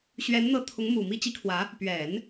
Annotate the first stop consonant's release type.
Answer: aspirated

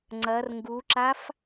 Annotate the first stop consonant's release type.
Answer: click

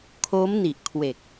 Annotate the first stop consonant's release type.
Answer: aspirated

